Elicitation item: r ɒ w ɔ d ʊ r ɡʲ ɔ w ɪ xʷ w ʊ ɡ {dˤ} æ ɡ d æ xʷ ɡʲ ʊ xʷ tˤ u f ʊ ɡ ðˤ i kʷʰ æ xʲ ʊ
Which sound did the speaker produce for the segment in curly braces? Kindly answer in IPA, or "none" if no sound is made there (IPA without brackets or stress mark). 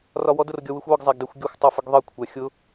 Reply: zˤ